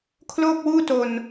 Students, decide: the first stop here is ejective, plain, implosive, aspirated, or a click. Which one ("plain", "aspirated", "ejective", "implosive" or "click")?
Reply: aspirated